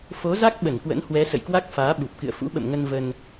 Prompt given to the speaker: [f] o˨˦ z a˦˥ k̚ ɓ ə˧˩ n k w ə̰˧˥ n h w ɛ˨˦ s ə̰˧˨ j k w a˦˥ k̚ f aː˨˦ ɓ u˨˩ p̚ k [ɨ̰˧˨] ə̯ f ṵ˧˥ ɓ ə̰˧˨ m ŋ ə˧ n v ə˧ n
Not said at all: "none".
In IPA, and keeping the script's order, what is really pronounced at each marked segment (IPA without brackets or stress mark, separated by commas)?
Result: f, ɨ̰˧˨